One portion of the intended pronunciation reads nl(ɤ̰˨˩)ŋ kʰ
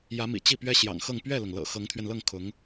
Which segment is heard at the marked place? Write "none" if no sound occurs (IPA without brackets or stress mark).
ɤ˥˩